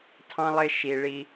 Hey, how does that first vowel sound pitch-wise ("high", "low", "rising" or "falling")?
high